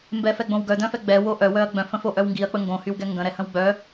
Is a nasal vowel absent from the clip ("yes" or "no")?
no